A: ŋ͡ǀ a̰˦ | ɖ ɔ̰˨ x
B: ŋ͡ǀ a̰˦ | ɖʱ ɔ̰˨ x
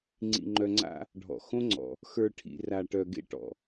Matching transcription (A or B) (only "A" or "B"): B